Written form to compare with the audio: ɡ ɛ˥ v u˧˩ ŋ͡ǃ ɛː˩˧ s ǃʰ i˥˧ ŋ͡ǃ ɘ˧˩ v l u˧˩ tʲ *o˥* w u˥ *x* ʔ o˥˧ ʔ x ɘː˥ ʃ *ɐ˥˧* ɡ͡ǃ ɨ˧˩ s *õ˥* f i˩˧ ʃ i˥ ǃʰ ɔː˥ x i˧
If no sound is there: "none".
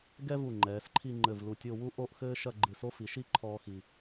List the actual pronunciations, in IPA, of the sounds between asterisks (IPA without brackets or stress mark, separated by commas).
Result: o˥˧, none, ɐ˥˧, o˥